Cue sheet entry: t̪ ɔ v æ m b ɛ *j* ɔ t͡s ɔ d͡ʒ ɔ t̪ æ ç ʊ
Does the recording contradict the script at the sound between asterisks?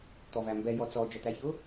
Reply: no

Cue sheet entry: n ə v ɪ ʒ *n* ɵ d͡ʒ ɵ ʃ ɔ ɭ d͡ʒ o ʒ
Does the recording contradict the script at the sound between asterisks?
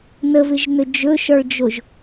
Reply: no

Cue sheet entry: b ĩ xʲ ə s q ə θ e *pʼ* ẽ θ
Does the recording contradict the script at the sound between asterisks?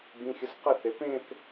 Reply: yes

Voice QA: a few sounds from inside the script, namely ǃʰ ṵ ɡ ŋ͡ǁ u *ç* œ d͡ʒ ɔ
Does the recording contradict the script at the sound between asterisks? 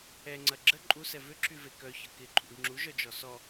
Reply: yes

